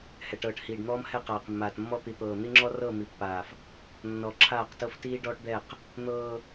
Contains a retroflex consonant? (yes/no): yes